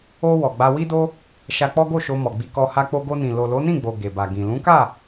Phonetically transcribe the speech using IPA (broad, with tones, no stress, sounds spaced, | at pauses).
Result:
o˧ w ɔ˨ ɡ͡b a˧ w i˦ d o˦ | ʃ a˧ k͡p ɔ˦ ɡ o˦˨ ʃ o˧ m ɔ˨ ɡ͡b i˧ k ɔ˧ h a˧ k͡p o˧ ɡ o˧ n ĩ˨ l o˨ l o˨˦ n ĩ˦˨ ɡ͡b o˨ ɡ e˨ b a˨ ɡ ĩ˨ l ũ˨˦ k a˦˨